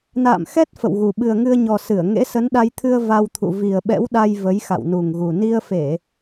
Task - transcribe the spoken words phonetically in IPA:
na̰ː˧˨mxɛ˦˥t̚ fə̰˧˨wɣu˨˩ ɓɨ˨˩ə̯ŋɨ˧ə̯ɲɔ˨˩ sɨ˧˩ə̯ ŋḛ˧˥sə˨˦nɗa˧jt̪ʰɨ˧ə̯ va˧wt̪ʰṵ˧˨ vi˨˩ə̯ ɓɛ̰˧˥wɗa˧j və˨˦jxa̰˧˨wnu˨˩ŋɣu˨˩ ni˧ə̯fe˧˩˨

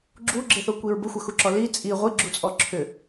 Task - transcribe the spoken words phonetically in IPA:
ɡ͡ǁuɡ͡ǁɪθokʷiɹ bəxʷəxuǁɔ li t͡sʼi ʁʷiɡ͡ǁut͡sʼɔ ǁʰʏ

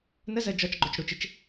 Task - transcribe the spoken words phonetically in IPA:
nəzɜ d͡ʒɒt͡ʃɡ͡ǃot͡ʃ ɽut͡ʃɪt͡ʃ

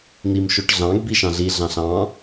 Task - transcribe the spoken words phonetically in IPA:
n̪im ʃoʈɮɑ̃ɡ biʃɑ̃ɮi ɮɑ̃ɬɑ̃

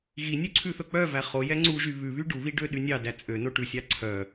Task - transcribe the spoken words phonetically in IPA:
ɣinʲʉ ǀʰʉθɵk͡pœvæ χo jɛŋ͡ǀuʒy βʉβy ɖuβi ɖøɗynʲɑdæ t͡sʼø noʈʉsʲɑ ǀʰœ

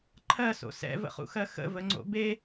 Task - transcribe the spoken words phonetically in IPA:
ǃʰɜso̰ sɛ̰və̰χṵxɜ xə̰vəŋ͡ǀo̰ be

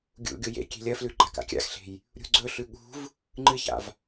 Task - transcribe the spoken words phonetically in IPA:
ɡʲṵɡʲo jḛkʲe̤ lʲɐflʉ ɡ͡ǃaka̰kʲa̰xɬe̤j | ɾʲṳɡ͡ǀɵɬʉ ɠṳv | ŋ͡ǃɨça̰v

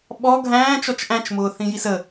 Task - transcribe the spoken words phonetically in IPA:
ɓɔ ɡʱæ̃ːt͡ʃɔt͡ʃ ʔæ̃t͡ʃmʊː θĩjisə

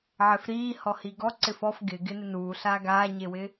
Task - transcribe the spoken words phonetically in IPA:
ʕɪfɾiː hɔhiɡɔ ǀɪfɔf ɡɪ ɡɪnɪnuː ɬaːɡaːɲewɪ

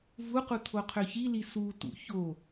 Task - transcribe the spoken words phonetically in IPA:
vuqu t̪ʰoqʰøçili sutṵ ço

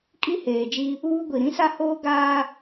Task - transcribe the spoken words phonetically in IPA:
kʼi˦ heː˨d͡ʒi˦ | uː˦ ɡʷi˨ɾĩ˦sa˦hoː˦ ɡaː˦

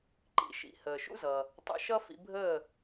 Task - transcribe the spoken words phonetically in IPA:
ǃḭ˩ʃḭ˩ həː˩ʃṵ˥ zʌ˩ | tˤə̰˧ʃʌ˥ fḭ˧bʱəː˥˩

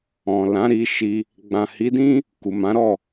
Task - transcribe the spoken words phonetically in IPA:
ɔ̃˨lã˨˦ ɾi˧ ʃi˧ | ɡ͡bã˨hi˨˦dĩ˦ | ku˨mã˨˦ɾɔ˦˨

